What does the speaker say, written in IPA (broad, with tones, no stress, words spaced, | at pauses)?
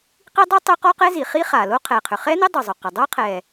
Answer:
qi˥dˤɛ˥ tˤø˥qɔ˥qɛ˥ zi˩χi˥χa˩lo˥ qʰɛ˩qʰʏ˩ χɛ˥nɪ˥ dˤʊ˩zˤʊ˩qə˩ dˤo˥qʰɛ˩